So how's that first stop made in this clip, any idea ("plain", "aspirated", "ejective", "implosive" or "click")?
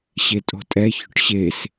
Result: ejective